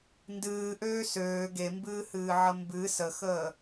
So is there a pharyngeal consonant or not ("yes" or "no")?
yes